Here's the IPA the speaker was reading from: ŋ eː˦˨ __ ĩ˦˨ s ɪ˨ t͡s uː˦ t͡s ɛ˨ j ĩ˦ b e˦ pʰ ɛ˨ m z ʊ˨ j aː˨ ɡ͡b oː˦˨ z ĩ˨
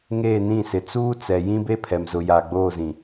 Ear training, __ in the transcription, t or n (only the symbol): n